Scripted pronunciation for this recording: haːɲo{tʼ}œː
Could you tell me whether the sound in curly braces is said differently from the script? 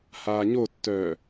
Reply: yes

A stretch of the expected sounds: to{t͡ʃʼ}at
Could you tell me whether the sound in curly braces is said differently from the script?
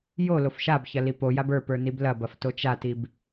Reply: yes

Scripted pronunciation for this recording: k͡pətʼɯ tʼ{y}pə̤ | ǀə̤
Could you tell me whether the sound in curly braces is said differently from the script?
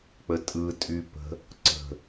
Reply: no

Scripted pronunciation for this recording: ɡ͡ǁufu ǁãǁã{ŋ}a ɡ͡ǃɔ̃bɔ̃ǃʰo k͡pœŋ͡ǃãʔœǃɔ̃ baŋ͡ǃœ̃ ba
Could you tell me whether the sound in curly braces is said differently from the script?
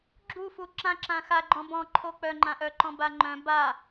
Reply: yes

